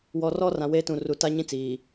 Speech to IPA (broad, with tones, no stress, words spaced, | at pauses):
wɔ˨rɔ˦ rã˨weː˦tũ˨ ru˨ta˦ ɲĩ˦t͡siː˨